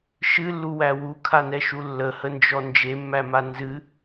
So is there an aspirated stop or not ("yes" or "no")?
yes